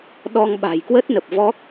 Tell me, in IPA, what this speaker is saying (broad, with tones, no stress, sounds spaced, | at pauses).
ɗ ɔ˧ ŋ ɓ a̤˨˩ j k w ə˦˥ t̚ n ə˨˩ p̚ v ɔ˦˥ k̚